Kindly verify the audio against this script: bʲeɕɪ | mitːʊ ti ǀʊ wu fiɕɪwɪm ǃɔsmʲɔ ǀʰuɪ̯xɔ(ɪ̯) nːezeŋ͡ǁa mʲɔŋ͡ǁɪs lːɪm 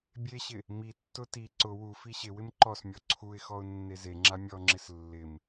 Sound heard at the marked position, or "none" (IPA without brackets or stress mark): ʊ̯